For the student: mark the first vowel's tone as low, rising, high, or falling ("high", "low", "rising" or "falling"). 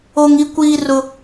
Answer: high